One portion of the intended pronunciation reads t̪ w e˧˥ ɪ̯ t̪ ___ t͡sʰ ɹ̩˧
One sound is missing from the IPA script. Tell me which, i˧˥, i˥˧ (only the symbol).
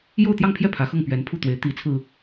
i˧˥